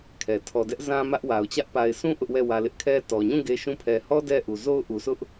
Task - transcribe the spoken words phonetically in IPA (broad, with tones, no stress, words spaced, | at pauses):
kʰɛ˨ tʰɔ˨dɛ˦ʔzã˦ mä˦ʔwa˨ʊ̯t͡ɕä˦ʔ pa˨ɪ̯sũ˦ ʔʊ˦ʔwɛ˦˨ wä˨lɪ˦ʔkʰɛ˦ tɔ˨ɲũ˦˨ ɡe˦ʃũ˦ pʰɛ˨hɔ˦ dɛ˦ ʔu˨zo˦ʊ̯ ʔu˨sʊ˦ʔ